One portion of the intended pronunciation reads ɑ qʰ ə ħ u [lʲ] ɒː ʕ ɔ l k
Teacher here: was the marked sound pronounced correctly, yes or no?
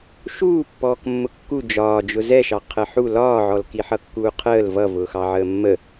no